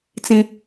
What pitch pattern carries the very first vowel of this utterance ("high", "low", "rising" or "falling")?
high